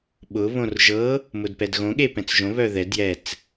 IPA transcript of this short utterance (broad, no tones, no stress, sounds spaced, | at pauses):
ɓ ʊ β õ r ʒ ɤ | m ʊ d p ɛ d ɣ õ ɠ e p ɛ̃ t͡s ʒ õ β œ ð ɛ d j ɛ t͡s